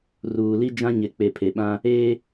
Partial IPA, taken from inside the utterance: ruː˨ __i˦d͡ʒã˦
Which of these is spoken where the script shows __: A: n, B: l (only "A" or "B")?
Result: B